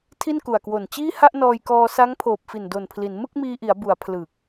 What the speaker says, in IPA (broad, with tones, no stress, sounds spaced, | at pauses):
tʰ i˥˩ n k u˨˩ a̯ k w o˨˩ n t͡ɕ iː˥˩ h a˥˩ ʔ n ɔː˧ j k ɔː˧ s a˦˥ ŋ pʰ oː˨˩ p̚ f i˨˩ n d o˨˩ n pʰ l i˩˦ n m ɯ˥˩ k̚ m iː˧ ʔ i˩˦ a̯ b u˩˦ a̯ pʰ l ɯ˨˩ k̚